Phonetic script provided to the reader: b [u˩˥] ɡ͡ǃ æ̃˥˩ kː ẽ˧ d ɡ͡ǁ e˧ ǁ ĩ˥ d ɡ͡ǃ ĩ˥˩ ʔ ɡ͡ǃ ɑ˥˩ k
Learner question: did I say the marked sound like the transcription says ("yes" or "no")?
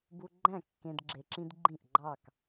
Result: no